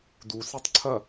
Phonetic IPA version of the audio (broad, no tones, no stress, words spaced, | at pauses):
du setˤǀʰɐ